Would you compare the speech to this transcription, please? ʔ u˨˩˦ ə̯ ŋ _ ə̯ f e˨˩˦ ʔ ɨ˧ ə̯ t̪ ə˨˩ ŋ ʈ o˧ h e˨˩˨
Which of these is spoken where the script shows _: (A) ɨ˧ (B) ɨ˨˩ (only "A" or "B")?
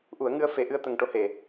A